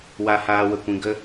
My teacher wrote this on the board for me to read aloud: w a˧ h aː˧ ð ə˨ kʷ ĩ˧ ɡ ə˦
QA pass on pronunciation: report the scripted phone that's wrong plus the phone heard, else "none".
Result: ð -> w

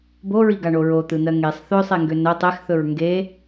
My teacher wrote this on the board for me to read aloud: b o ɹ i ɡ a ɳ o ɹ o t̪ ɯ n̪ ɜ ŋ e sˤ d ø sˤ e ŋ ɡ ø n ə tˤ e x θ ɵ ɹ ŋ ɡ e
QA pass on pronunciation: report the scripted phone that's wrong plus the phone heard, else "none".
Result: d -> θ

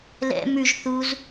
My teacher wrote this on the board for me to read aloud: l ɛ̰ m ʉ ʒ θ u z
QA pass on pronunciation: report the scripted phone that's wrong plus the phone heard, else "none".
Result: none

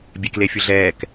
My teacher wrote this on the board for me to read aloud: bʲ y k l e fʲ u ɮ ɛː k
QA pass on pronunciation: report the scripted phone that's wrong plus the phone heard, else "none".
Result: y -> e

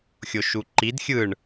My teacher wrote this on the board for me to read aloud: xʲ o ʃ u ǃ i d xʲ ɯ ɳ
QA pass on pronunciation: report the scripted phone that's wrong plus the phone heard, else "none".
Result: none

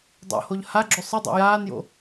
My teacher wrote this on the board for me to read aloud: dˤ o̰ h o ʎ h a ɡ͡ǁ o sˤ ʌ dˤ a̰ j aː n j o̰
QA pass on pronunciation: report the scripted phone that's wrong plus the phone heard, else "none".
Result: none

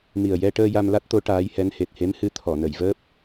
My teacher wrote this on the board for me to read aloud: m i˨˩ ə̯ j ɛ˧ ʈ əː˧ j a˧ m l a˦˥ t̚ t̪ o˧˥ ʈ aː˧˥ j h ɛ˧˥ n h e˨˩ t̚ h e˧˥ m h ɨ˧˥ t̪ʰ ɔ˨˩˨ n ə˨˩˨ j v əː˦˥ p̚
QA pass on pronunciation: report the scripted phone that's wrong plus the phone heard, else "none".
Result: none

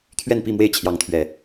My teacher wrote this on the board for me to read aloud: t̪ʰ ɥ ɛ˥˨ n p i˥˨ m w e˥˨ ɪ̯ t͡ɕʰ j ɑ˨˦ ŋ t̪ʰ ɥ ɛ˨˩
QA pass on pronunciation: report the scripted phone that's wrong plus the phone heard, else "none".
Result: none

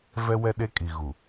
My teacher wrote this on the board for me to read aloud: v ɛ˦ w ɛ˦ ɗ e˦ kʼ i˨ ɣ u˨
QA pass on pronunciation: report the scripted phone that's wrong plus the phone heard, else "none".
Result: none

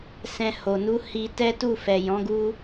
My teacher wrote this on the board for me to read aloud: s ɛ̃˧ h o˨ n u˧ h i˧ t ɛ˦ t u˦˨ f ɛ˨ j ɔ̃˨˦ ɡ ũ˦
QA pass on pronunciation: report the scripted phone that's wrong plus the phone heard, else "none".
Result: ũ˦ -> u˦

